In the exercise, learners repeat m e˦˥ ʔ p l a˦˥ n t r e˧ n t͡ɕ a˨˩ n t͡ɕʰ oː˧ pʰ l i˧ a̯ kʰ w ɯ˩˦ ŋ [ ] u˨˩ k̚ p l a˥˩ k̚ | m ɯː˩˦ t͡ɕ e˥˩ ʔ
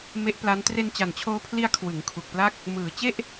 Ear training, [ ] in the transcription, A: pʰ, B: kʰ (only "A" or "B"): B